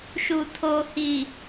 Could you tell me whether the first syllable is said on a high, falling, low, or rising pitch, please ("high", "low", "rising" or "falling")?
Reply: low